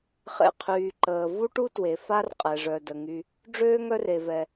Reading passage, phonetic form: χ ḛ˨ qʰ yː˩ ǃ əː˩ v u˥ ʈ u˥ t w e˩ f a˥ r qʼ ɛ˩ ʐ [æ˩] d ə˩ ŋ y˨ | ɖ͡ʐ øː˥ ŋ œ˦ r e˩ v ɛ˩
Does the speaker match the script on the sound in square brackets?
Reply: no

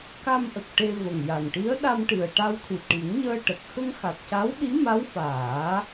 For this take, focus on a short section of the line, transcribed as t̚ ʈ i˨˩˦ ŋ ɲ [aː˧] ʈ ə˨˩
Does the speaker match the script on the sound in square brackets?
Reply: no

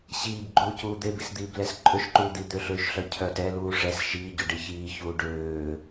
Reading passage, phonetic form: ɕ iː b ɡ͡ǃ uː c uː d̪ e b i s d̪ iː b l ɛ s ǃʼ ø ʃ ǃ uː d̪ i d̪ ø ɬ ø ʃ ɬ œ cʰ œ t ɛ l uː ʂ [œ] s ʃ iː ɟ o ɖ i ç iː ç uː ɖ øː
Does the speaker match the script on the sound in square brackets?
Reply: no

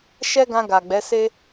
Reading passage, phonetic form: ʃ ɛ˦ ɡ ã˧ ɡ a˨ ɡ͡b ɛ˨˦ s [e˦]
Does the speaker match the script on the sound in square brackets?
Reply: yes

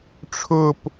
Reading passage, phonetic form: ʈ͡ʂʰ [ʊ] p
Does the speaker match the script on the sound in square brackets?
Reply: yes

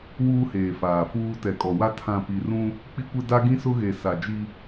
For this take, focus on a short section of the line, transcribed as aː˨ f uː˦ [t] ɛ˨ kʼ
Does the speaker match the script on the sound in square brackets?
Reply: yes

